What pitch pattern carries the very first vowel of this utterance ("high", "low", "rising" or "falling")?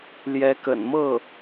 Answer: rising